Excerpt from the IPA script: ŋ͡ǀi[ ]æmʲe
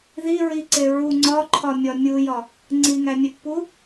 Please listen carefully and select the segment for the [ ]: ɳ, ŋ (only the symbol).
ŋ